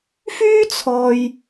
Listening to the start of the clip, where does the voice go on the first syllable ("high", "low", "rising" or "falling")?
high